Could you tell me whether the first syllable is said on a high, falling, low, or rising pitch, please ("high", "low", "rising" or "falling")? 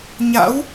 rising